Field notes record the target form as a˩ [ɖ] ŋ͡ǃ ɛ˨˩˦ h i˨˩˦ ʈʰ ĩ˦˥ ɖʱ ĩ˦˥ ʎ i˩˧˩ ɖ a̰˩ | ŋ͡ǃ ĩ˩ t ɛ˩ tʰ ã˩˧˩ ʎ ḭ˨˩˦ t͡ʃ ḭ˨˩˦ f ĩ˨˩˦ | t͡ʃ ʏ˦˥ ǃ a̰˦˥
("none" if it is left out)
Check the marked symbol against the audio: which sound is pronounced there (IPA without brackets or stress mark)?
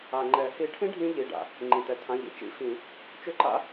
none